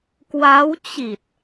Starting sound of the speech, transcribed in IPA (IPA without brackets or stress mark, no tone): k